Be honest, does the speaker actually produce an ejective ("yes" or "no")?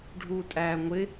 yes